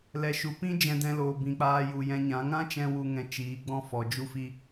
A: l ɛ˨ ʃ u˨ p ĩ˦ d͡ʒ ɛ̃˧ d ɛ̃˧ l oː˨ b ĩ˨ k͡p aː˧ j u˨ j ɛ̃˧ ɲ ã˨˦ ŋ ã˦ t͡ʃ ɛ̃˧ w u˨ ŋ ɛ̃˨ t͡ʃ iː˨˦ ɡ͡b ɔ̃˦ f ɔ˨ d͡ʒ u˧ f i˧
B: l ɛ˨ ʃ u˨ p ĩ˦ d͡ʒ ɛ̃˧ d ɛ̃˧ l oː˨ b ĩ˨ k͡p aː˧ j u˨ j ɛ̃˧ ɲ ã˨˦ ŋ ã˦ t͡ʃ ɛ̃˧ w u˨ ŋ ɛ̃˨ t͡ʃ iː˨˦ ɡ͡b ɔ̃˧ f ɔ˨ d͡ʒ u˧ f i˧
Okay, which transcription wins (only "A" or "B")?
A